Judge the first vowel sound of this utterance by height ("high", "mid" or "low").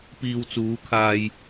high